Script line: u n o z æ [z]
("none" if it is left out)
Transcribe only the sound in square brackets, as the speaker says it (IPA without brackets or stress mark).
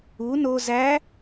none